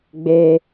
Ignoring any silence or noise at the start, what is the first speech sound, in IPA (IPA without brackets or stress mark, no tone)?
ɡ͡b